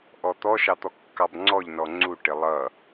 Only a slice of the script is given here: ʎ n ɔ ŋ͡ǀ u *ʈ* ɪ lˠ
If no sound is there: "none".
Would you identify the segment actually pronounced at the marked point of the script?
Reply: ʈ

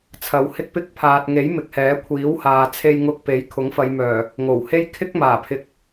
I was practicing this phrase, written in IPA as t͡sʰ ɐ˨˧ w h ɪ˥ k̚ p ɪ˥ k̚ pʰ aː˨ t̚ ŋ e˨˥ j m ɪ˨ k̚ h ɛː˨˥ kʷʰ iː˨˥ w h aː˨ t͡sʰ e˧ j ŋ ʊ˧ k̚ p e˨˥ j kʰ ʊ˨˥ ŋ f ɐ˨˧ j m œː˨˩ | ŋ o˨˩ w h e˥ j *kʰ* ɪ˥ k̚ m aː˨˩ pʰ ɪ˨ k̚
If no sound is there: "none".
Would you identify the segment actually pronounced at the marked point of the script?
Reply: kʰ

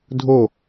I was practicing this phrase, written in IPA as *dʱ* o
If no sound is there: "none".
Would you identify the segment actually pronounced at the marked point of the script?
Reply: dʱ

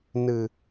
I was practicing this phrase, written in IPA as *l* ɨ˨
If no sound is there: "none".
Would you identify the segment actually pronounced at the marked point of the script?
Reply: n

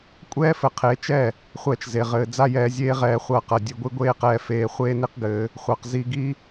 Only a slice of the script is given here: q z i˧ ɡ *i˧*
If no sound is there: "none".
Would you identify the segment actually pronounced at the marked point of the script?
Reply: i˦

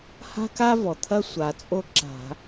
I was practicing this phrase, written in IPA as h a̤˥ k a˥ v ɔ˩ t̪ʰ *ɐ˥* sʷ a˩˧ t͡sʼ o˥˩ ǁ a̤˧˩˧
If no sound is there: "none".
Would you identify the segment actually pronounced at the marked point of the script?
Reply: ɐ˥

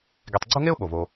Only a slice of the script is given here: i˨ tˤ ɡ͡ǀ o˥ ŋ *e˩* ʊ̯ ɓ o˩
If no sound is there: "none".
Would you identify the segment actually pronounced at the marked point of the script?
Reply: e˥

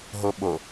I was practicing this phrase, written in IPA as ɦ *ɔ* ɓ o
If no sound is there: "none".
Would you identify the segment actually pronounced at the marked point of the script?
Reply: o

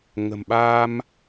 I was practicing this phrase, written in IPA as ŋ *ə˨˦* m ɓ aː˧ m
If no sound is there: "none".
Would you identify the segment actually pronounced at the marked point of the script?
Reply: ə̤˨˩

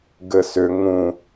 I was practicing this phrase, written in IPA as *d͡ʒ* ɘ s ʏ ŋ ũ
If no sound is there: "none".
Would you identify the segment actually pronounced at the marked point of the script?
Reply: ɡ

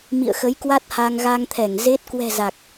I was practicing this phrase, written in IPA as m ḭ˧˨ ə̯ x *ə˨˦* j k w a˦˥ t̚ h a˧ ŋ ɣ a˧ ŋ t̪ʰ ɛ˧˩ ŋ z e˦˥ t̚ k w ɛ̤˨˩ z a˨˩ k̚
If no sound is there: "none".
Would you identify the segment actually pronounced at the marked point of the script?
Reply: ə˨˦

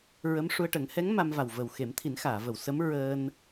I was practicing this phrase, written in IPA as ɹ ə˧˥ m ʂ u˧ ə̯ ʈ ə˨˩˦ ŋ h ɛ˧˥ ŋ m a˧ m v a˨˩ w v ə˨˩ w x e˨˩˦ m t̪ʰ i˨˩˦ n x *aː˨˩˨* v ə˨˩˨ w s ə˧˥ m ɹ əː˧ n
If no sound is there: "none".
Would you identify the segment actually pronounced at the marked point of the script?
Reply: aː˨˩˨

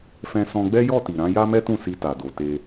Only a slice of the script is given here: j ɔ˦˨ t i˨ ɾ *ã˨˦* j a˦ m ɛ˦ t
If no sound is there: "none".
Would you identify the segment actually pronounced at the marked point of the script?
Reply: ã˨˦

